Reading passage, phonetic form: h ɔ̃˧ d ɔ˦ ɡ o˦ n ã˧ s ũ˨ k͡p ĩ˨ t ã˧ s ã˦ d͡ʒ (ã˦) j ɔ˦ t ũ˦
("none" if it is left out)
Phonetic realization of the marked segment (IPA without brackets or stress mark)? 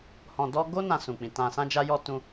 a˦